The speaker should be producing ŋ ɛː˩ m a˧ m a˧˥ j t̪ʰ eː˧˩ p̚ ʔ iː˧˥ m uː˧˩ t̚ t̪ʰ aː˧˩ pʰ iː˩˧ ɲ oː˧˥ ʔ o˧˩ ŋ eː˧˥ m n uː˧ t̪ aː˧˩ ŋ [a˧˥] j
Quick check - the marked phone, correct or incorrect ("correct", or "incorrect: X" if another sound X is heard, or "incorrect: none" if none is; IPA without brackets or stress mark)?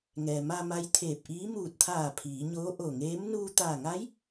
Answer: correct